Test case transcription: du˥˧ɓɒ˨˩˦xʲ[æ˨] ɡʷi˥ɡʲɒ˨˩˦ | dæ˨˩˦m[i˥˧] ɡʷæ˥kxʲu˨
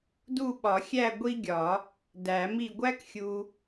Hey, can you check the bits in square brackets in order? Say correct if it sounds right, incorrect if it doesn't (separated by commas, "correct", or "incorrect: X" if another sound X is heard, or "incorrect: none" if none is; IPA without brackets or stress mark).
incorrect: æ˥˧, correct